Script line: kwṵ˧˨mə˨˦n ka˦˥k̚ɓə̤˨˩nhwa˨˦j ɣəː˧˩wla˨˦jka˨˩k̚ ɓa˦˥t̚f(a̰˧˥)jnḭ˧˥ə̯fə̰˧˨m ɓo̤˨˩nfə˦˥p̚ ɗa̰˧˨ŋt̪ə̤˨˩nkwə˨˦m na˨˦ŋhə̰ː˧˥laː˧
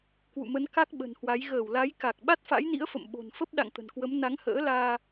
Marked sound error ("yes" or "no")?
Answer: no